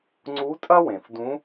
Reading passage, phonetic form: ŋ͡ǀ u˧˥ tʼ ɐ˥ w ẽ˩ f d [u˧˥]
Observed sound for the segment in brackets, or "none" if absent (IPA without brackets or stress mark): ũ˧˥